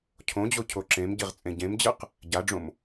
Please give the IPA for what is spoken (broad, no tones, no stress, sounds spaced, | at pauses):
cʰ õ d͡ʑ o cʰ o ǁ ẽ m ɟ i ʁ t͡sʼ ẽ ɟ ẽ m d͡ʑ ɯ q | ɟ a ɖ͡ʐ õ m